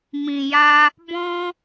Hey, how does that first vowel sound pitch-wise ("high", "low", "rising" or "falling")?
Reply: low